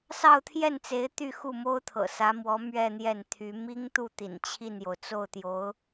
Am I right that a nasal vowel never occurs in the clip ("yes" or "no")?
yes